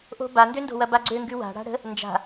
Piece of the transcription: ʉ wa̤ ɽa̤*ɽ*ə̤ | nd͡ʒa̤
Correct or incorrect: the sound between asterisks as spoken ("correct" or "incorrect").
correct